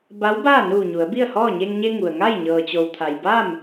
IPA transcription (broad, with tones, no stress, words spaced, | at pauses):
ba˧˥wbaː˥˨nuː˧˩ ɲu˩˧ə̯bi˥˨ə̯hɔː˥˨ ɲe˧ŋɲe˧ ŋu˩ə̯ ŋa˥˨j ɲɤː˩t͡ɕo˩wt̪ʰa˩j ba˥˨m